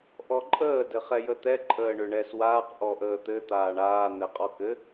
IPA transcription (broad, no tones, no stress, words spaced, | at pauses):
ʔɔǃʼəː dɘχɛjət̪ɛ ǃʼəːɳʏɳɛswaːq ʔɔʔəːt̪ɘ t̪aːɳaː n̪ɛqʼɔkɘ